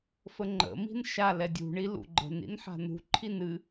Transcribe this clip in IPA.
fəŋ͡ǃə̰ mi̤nʃa lɛdʲṳ ɳilṵɡ͡ǃə̤n ḭnħa̤nṳ ǃʰinɨ

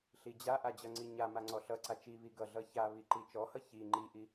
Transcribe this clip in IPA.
ɬid͡ʑaʔa d͡ʑʌŋ͡ǀiɲama ŋ͡ǀɔɬʌǀa t͡ʃiβi ɡʌɮʌ çaβi ǃit͡ʃɔhʌ çi ŋ͡ǃiʔi

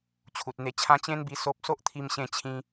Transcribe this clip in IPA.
t͡ɕʰu˨t̚n̪e˧t͡ɕʰã˦ t͡ɕẽ˦nbi˧ so˦p̚ so˦ʔt̪ʰi˧m ɕẽ˧ t͡ɕʰĩ˧

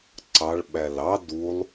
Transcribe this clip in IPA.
ǀɑɭ ɓælɑ dulˠ

